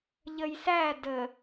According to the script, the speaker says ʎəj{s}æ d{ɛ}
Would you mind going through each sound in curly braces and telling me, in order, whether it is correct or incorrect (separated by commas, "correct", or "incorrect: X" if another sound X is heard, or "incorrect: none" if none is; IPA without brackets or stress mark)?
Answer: correct, incorrect: ə